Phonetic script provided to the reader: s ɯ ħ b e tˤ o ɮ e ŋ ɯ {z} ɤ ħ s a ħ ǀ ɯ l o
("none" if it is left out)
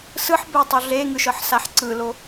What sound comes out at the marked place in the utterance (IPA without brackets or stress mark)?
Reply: ʃ